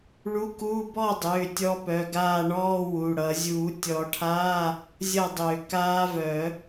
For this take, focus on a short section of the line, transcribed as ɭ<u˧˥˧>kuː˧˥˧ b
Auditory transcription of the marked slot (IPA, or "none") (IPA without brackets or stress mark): u˧˥˧